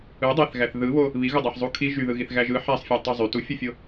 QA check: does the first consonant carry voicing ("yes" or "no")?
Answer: yes